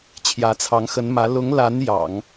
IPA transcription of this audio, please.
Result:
t͡ɕʰ j ä˧˥ t͡sʰ ɑ˧˥ ŋ x ə˧˥ n m ä˧˥ l ʊ˧˥ ŋ l a˧˥ n j ɑ̰˨˩˦ ŋ

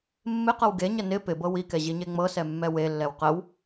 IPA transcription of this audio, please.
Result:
mː ɪ q ɤ w ɡ e ɲ ə n ɪ p ɪ b ɤ w i k ɛ ʑ i ɲ e ŋ͡m ɤ s ɛ mː ɛ w e lː ɛ w q ə w

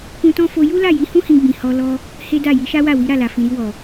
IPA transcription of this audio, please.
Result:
k ũ˧ t ɔ̃˦ f o˧ j u˦ l a˦˨ j i˨˦ h ũ˦ h ĩ˧ ɡ͡b ĩ˨ h ɔ˧ l ɔ˧ | h e˦ d a˦˨ j i˨˦ ʃ a˦ w a˦˨ w i˨˦ ɾ a˦˨ l a˨ f ĩ˨ ɾ i˧ w ɔ˨

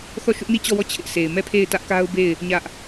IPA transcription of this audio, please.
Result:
θ ɔ˦˨ ʃ ʊ˦ ʔ n i˦˨ t͡ɕ ɔ˦˨ w ɔ˦˨ t͡ɕʰ ɪ˦ ʔ sʰ e˨ ɪ̯ m ɛ˦˨ pʰ e˦˨ ɪ̯ t ä˦ ʔ k a˦ ʊ̯ b e˦˨ ɪ̯ | ɲ ä˦ ʔ

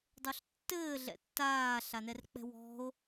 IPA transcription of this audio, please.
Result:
dˤ o ɬ tː ɘː ɮ ɛ̰ tː aː ɬ a n ɛ r k͡p ɛ̤ w ɔ̤ o̯

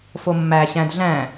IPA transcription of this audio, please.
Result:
f o mː æ ɕ æ̃ d ɮ æ̃

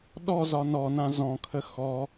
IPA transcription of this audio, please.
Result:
ɗ ɔ z ɒ n ɔ n ã z ɔ̃ kʰ ə x ɔ

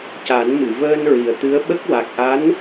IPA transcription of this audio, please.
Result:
c a˨˩˦ n m ɨ˨˩˨ v əː˧ n ɹ i˨˩ ə̯ t̪ ɨ˧˥ ə̯ ɓ ə˦˥ k̚ w a˨˩ k̚ ʔ a˧˥ n

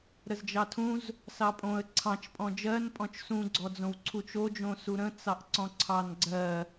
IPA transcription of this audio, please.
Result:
ɾ ə z d͡ʒ ɑ tʰ ũ z | s ɑ pʼ õ ə̯ ǀʰ ɑ̃ t͡ʃ pʼ ɔ̃ d͡ʒ ɜ n pʼ ɔ̃ t͡ʃ s ũ ɡ͡ǀ ɔ d͡z õ w ǀʰ u t͡ʃ o d͡ʒ õ s u ɾ ə̃ t͡s ɑ ʔ ǀ ɔ̃ ǀʰ ɑ n ɡ͡ǀ ɜ

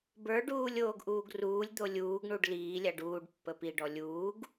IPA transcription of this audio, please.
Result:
b ə˞ ɖ uː lʲ oː ɡ ʔ uː ɡ r uː lʲ d̪ o lʲ uː ɡ ɳ u ɖ l iː lʲ a ɖ uː ɖ pː ə p i ɖ ɔ lʲ uː ɡ

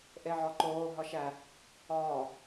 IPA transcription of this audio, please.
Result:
ʔ e ʕ ɒ ǃ oː ɦ ɒ ʃ æ | ɒː

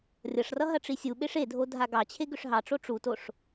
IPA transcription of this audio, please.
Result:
rʲ ʌ ʂ r ʌ ɦ ɐ ʈ͡ʂ i sʲ u ɓ e ʂ e dʱ o dʱ a ɡ ɑ t͡ɕʰ e ɡ ʏ ʂ ɦ ɑ ʈ͡ʂ o ʈ͡ʂ u t o ʂ

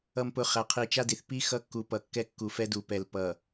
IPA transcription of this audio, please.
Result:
ʌ˨ m p ʊ˨ χ æ˨ qʰ i˨ t͡ʃ a˦ d i˨ θ p i˦ x ʌ˦ kː u˨ p ʌ˨ kː ɛ˦ kː u˨ f ɛ˦ d u˨ p ɛ˨ l p ʌ˨

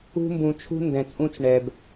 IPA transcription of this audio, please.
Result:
ṳ˦ m b ũ˧ t͡ʃʰ ṳ˦ n d ɛ̃˧ t͡sʼ ũ˦ t͡s ɳ ɛ˧ b

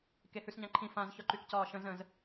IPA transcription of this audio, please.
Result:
k e h ʉ s ɲ ã ǃʰ ĩ f ã z ç ɒ ǃ y k c ɒː ʃ ə̃ z ə̃ z

